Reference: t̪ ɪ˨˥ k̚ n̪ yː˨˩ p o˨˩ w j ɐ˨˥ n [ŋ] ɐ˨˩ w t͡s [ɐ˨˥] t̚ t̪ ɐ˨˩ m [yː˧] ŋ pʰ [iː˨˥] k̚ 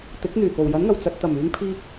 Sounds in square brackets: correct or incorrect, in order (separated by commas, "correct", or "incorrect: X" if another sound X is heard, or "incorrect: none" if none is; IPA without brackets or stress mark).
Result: correct, incorrect: ɐ˧, correct, incorrect: iː˧